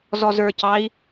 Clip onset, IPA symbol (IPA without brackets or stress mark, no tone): z